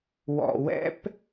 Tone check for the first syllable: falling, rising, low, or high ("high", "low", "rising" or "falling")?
low